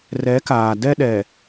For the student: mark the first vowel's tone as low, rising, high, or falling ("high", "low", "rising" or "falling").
rising